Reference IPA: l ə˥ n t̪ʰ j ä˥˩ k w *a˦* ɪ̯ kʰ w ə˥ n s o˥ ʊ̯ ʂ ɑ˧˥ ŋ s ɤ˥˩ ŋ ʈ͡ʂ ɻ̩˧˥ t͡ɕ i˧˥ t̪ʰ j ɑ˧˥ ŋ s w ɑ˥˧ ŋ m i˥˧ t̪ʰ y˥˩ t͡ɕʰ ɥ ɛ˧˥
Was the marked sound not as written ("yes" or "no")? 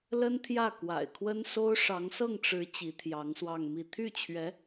yes